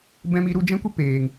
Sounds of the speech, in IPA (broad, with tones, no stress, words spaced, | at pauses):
bɛ̃˧mi˧ ɾu˧d͡ʒɛ̃˦kʷə˦ peː˨ŋ